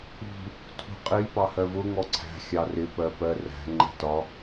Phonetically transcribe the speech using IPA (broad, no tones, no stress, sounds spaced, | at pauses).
ṳ | tʰ ṳ qʼ i p ɑ h ɜ v ʊ ŋ ɔ ǀʰ æ̤ xʲ ɑ r ɪ p ɜ p ɜ r æ̤ ŋ͡ǃ ɛ̤ t ɒ